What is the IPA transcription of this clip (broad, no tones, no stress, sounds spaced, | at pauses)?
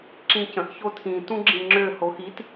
ǁ ĩ c ə̃ ʔ ç o tʰ ĩ t ũ ɡ͡ǁ ĩ ŋ͡ǁ ø h o x i t